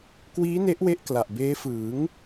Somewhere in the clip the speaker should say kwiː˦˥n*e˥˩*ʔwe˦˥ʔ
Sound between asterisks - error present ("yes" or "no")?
yes